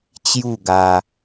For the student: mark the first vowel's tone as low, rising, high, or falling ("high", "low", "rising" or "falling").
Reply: falling